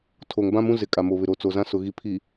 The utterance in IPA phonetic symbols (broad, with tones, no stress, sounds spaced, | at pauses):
tʰ o˨ ŋ b ã˦ m ũ˦ z ɪ˨ kʼ a˨ m o˨ β ɪ˨ ɾ o˨ t͡s o˨ z ã˦ s ʊ˨ ɣ i˨ pʰ i˨